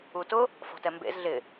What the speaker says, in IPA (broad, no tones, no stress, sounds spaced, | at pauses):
u t ʊ | f ɔ̤ t ɛ m b ḛ z ɮ ɪ